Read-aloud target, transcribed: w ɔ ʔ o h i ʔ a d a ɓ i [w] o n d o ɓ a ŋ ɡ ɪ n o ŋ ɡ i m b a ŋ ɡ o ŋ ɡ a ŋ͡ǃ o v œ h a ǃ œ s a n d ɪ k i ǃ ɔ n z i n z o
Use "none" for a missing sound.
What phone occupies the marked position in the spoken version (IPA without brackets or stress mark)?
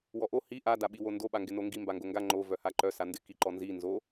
w